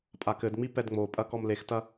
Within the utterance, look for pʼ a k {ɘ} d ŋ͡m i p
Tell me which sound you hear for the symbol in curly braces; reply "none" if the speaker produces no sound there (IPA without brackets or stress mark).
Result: ɘ